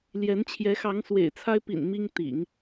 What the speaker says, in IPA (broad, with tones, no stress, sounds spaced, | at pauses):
l j ɛ˧˥ n t͡ɕʰ j ɛ˧˥ x ɑ˧˥ ŋ s w ḛ˨˩ ɪ̯ t͡sʰ a˥ ɪ̯ p ḭ˨˩ n m i˥ ŋ t̪ ḭ˨˩˦ ŋ